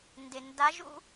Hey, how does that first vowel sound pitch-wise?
low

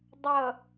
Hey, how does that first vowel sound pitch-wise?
low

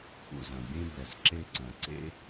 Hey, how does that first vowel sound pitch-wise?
low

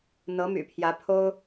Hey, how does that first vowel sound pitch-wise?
rising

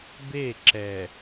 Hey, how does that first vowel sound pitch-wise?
falling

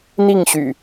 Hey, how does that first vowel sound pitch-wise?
falling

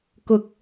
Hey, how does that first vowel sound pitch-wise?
rising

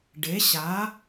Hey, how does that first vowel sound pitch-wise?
rising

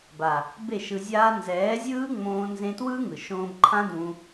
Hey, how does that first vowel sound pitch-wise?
low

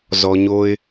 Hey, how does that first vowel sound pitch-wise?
low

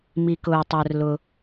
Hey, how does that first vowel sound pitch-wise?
low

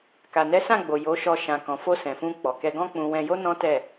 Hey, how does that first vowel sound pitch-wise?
low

